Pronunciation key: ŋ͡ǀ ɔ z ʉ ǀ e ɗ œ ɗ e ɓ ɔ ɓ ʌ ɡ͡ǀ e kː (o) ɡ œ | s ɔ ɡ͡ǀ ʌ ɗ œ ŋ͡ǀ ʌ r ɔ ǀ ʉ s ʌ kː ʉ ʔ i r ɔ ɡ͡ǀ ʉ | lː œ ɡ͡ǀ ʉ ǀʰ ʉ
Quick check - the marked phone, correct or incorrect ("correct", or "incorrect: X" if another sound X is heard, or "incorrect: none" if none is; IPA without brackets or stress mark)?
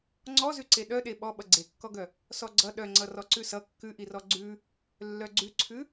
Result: incorrect: ɔ